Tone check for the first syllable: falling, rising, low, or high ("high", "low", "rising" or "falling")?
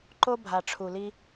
high